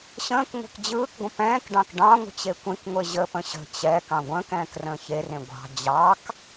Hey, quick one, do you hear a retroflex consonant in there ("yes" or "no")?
yes